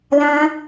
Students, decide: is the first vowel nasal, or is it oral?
nasal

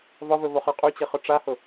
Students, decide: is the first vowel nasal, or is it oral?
oral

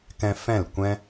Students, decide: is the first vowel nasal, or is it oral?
nasal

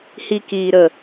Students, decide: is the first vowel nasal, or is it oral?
oral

